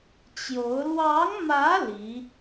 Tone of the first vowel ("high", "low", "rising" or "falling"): rising